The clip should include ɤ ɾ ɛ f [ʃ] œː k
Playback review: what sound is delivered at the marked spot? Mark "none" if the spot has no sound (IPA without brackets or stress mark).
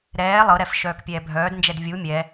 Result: ʃ